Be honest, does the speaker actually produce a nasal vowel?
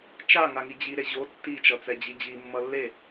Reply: no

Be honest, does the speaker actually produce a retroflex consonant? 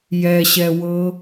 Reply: no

